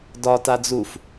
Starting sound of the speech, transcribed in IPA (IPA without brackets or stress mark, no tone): d